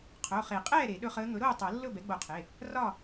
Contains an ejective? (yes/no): yes